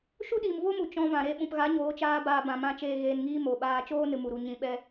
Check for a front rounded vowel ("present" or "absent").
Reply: absent